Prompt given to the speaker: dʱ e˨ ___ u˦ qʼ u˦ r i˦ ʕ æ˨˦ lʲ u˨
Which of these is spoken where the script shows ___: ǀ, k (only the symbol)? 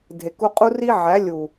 k